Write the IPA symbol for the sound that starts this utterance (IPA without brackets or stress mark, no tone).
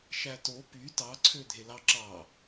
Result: ʃ